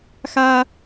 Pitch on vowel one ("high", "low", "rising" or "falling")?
high